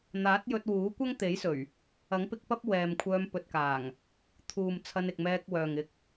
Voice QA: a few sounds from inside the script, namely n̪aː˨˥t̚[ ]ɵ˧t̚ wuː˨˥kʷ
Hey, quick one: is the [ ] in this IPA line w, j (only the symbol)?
j